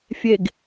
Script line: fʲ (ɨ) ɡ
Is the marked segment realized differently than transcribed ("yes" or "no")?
yes